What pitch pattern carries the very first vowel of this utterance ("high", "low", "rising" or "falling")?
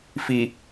low